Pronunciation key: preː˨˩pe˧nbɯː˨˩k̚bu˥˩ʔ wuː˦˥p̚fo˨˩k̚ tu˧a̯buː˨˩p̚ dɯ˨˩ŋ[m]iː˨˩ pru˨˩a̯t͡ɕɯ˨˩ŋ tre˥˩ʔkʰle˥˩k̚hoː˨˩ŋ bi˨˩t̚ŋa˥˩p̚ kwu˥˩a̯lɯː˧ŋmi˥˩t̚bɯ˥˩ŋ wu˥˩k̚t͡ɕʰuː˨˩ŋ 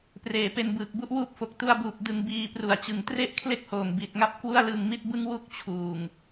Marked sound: incorrect: b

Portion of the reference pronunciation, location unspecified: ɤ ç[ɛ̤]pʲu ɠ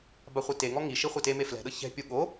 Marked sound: correct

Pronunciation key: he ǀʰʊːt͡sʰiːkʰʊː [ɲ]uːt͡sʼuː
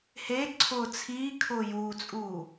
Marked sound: incorrect: j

